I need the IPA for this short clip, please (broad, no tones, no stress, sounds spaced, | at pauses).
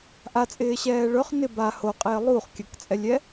ʔ a t͡sʼ ɪː ɕ ɛː ɭ ɵ χ n ɪ b a h o qʼ ɪː lˠ u χ kʲ ə k t͡sʼ ɛ lʲ ɛ